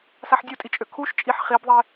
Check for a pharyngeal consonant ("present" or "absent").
present